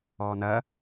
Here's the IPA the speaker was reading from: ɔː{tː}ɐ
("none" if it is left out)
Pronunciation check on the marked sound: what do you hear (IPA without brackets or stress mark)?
n̪